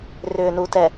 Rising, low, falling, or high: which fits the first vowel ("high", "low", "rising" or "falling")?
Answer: low